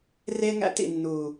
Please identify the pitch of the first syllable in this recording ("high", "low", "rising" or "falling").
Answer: high